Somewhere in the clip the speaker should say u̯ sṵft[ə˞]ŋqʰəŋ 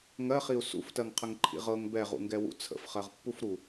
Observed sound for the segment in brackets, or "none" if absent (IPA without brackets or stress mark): ɜ